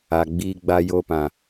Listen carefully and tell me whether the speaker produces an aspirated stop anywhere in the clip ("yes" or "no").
no